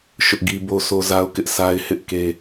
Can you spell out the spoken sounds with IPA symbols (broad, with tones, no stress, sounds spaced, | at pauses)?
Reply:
ʃ ʊ˦ ʔ ɡ i˦ b o˦ sʰ o˦ z a˦ ʊ̯ k ɪ˦ ʔ s a˦ ɪ̯ h ɪ˦ ʔ k e˦